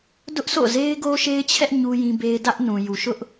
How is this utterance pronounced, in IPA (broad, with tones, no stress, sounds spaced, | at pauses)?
d ʊ˦ ʔ s o̰˦˨ z e˦ ɪ̯ ɡ o˦ ʃ e˦ ɪ̯ t͡ɕʰ ɛ˦ ʔ ɲ u˦ j ĩ˦ b e˦ ɪ̯ d ä˦ ʔ n ũ˨ j u˨ ʃ ʊ˦ ʔ